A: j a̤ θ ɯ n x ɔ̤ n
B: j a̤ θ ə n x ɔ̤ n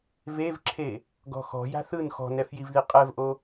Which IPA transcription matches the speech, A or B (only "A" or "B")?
A